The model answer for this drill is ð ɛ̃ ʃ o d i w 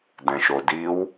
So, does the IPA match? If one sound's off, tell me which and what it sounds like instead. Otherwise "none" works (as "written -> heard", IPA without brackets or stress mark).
ð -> d